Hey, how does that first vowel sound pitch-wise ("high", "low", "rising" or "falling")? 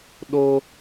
high